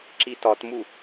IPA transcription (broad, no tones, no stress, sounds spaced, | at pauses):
ǁ i t ɒ t m u